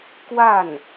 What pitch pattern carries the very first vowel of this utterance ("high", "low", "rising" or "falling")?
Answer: falling